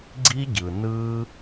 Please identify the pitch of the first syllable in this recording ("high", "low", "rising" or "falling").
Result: high